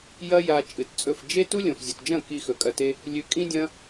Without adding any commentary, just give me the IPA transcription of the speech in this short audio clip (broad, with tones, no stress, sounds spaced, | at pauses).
j ɐ˦ j a˧ t͡ʃʼ ɨ˨ t t͡sʼ ɵ˦˨ f d͡ʒ e˦ t u˦ lʲ õ˨ f zʲ o˨ t d͡ʒ ɐ̃˦˨ k i˧ x ɵ˨ kʼ ɐ˧ t e˦ | lʲ ʉ˧ kʼ ĩ˦ dʲ ɐ̃˦